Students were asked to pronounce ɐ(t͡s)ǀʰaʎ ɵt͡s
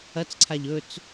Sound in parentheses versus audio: correct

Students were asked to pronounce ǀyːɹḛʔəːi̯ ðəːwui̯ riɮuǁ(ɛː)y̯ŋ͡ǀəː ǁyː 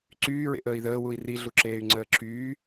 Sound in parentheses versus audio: incorrect: eː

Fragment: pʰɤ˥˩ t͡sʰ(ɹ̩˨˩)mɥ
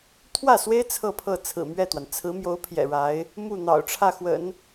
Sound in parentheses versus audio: correct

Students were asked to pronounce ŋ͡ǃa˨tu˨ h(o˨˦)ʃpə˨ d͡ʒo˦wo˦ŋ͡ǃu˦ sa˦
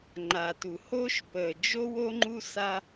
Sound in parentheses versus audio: incorrect: o˦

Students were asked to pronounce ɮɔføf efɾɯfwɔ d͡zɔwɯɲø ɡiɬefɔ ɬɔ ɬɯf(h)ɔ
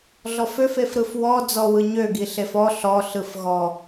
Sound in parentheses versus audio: incorrect: ɣ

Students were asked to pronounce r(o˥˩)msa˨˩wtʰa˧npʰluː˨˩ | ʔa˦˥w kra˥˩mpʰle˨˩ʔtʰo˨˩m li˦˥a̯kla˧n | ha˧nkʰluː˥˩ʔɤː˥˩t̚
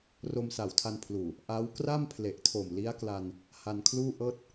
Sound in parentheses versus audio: incorrect: o˧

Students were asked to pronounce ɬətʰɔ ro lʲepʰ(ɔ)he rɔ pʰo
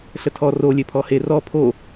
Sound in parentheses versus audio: correct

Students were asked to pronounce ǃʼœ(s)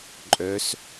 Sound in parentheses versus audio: correct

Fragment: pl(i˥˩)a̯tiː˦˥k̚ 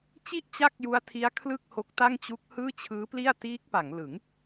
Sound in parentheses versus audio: correct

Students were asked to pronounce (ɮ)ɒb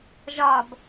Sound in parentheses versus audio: incorrect: ʒ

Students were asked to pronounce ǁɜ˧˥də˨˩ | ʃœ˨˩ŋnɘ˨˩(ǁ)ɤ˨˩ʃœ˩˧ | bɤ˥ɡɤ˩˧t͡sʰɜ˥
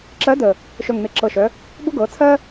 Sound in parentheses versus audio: correct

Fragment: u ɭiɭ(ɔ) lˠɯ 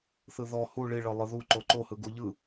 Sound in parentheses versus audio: incorrect: ɤ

